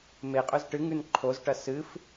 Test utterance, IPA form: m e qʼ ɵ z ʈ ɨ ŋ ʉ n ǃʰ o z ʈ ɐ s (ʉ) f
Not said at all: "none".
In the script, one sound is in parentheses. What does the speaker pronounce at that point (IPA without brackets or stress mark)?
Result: ɨ